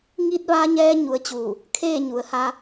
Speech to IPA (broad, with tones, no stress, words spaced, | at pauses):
ŋi˧t̚ʋa˧ɲɛː˧ ɲu˧˥ə̯t͡ɕuː˧˩ | kʰeː˥˨ɲu˩˧ə̯ha˧